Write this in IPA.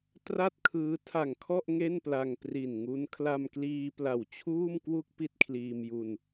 tra˥˩t̚kʰɯː˦˥ tʰa˨˩ŋkʰɔ˥˩ʔ ŋe˥˩npla˧ŋpri˨˩n ŋu˦˥n kʰla˧mkliː˧ pla˨˩wt͡ɕʰuː˥˩mkwu˥˩k̚ pi˥˩t̚kʰliː˧mju˧n

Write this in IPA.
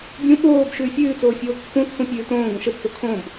bʲũ ɓoːb ʃʉːfʲʉːt͡soː fʲoːkːũt͡sʰũ pʲʉːtõːɡõ ʃəbt͡so kʰõb

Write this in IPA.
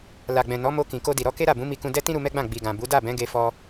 la˨ɡ͡bɛ̃˨ nɔ˨˦mo˧ kĩ˨ko˧di˨ ɾɔ˨˦ke˦ɾa˦˨bũ˨˦ mi˧kũ˧dɛ˦tĩ˦ ɾu˧mɛ˦ɡ͡bã˦˨ ɡ͡bi˨ɡã˨bu˨˦ da˦˨bɛ̃˨˦ ɡe˧fɔ˧

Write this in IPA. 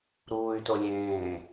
ɾuːy̯to lʲẽː

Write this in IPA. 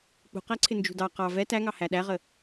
k͡pṳqæǀʰɪ nd͡ʒṳdɑ qɑ vɛ tæŋɑ hæɗæʁə

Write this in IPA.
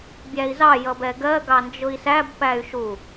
bʲæi̯zɑ jʌbɛɡɜ ɡɑnd͡ʒʊi̯sæb pæy̯ʃu

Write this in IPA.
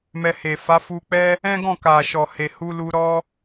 mɛ˧he˨ fa˨˦fu˧k͡pɛ˦ | ɛ̃˦ɡɔ̃˦˨ ka˨ʃɔ˨he˨ hu˧lu˧ɾɔ˦

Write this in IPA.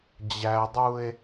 d͡ʑædˤue̯

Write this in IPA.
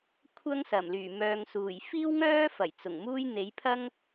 kʷʰɐ˥ŋsɐ˨˩mlyː˨˩ mœː˨ŋsuː˨˩j fiː˥wŋœː˥fɐ˨˩j t͡sʊ˨˩ŋmuː˥j n̪e˨˥jpʰɐ˥ŋ

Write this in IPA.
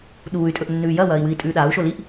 ɗuːy̯tʼɵʔnːʉː jɐwɐːi̯wɨi̯tʼʉː ɗau̯ʃo liʔ

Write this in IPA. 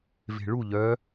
ve̤ɭu ʎœ

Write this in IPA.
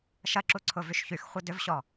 ʃɐǁuǀʰʊvyʃ çyxχʷɐ dʏvɕɔ

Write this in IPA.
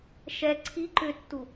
ʃɛ ǀʰi ǃʏtːu

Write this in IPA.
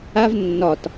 av nːɒt

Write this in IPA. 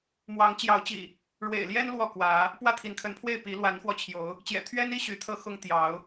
mwɑ˨˦ŋ t͡ɕjɑ˨˦ʊ̯t͡ɕḭ˨˩ | ɻwḛ˨˩ɪ̯ljɛ˦n lwɔ˥˨kwä˨˦ | pwä˥˨t̪ʰi˨˦nkʰə˨˦npʰwe˥˨ɪ̯ pi˨˦ lwa˨˦nxwɔ˧t͡ɕʰjo˨˦ʊ̯ | t͡ɕjɛ̰˨˩t̪ʰɥɛ˦ni˦ ɕy˨˦t̪ʰɤ˦ xʊ˦ŋ t̪jɑ˨˦ʊ̯

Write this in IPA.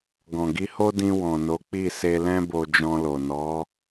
ɡɔ̃˨ɡi˧ho˦dĩ˧ wɔ̃˨no˨˦ k͡pi˦˨se˧lɛ̃˦ bo˧d͡ʒɔ̃˧lo˨ nɔ˨˦

